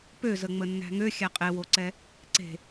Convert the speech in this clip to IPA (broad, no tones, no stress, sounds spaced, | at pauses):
p ø z ə ŋ͡m ə nː æ̤ ŋ ø xʲ æ qʼ e w o ǀ ɛ | ǀ e̤